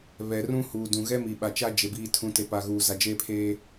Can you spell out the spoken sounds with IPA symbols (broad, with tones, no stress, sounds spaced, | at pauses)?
β ɛ˨ r ũ˦ h uː˨ d ũ˨ ɣ ɛ˦ m i˨ ɓ a˨ t͡ʃ a˦ d͡ʒ e˨ b iː˨ tʰ ũ˨ t e˨ p a˨ ɣ uː˨ z a˨ d͡ʒ eː˦ pʰ eː˦